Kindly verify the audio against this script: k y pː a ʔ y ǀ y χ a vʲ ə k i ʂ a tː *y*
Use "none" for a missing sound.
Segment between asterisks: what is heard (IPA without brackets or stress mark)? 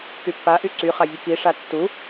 u